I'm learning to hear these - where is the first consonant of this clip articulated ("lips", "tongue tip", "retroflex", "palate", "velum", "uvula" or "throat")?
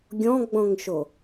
velum